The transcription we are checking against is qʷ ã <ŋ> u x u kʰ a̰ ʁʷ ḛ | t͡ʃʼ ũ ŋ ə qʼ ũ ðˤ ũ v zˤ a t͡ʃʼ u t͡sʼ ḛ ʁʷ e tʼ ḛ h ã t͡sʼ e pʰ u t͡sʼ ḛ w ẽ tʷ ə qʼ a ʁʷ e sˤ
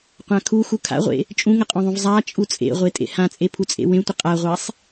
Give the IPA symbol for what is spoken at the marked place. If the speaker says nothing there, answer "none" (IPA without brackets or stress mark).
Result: kʰ